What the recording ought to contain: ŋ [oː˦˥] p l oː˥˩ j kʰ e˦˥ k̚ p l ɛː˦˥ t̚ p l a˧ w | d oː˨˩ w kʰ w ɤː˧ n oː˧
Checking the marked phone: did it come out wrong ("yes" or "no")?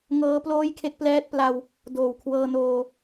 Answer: yes